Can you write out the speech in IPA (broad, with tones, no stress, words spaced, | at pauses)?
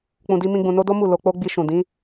k͡pũ˧di˦mĩ˦ɡ͡bũ˧ no˦do˦mu˦˨ lo˧k͡po˦ɡ͡bi˧ ʃũ˨dĩ˨˦